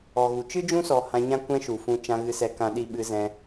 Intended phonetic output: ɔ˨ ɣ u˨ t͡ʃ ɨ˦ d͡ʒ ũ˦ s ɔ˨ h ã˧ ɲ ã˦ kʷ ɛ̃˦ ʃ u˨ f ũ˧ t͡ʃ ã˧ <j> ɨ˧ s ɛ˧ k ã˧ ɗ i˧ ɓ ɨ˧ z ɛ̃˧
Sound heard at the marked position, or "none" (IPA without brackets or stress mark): ɣ